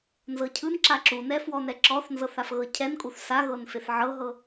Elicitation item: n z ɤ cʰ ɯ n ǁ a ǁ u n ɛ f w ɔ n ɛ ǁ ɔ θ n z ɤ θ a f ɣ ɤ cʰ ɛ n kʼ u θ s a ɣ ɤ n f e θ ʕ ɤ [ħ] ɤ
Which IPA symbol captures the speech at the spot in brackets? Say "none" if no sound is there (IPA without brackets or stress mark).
ɦ